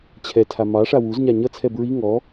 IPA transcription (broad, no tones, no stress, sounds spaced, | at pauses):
t͡ɕʰ ɛ tʰ a m ɑ ʂ a w u z ɲ a ɲ ʌ t͡sʰ ɛ b ɹ i ŋ ɔ